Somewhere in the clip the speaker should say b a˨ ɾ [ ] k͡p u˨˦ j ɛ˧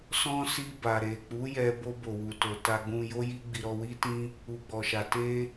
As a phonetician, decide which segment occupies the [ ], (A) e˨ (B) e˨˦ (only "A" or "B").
A